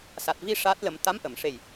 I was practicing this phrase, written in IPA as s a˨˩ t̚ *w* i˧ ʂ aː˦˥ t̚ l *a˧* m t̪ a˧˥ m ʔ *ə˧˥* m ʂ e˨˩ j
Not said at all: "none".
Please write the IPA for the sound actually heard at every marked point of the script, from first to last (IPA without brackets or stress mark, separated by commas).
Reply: v, ə˧, ə˨˩˨